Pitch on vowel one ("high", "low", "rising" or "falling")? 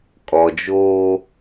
low